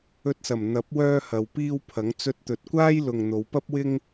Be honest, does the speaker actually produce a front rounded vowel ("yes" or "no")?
yes